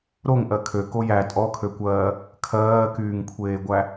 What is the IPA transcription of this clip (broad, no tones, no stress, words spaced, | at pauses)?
ɾoŋ ʔɜkʰø kojæ tʼɔkʰøkʷɜː | kʰɜːkyːŋkʷʰeːɡʷæ